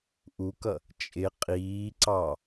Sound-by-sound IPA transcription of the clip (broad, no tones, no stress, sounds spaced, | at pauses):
ʔ u k ʌ | t͡ʃʼ ɪ qʼ iː ǀ ɑ